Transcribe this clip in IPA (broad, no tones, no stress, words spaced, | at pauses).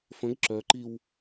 fə̃ɡ ǁœǃiw